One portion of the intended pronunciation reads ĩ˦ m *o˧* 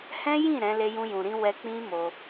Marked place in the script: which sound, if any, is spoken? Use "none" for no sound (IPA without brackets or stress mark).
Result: o˧